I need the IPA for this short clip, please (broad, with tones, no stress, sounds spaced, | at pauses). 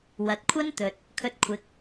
w ɐ˨ t̚ kʷʰ ɐ˥ n t̪ ɵ˨ t̚ | kʰ ɵ˧ t̚ kʷʰ ɪ˨˥ k̚